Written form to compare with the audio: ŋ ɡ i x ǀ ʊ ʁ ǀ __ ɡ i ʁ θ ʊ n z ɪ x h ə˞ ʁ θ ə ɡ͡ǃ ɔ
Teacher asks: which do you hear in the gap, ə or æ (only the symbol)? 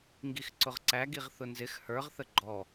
æ